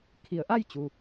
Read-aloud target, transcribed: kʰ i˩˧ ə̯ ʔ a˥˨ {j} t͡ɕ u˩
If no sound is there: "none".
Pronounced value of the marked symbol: j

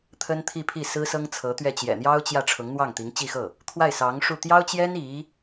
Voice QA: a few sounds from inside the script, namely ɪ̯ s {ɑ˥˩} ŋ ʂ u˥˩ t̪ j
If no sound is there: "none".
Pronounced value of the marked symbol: ɑ˧˥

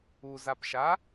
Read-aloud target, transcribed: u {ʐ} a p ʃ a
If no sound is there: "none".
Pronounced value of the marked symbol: z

